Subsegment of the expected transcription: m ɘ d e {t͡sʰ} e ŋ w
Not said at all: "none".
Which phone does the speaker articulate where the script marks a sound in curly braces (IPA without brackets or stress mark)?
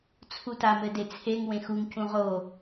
t͡sʰ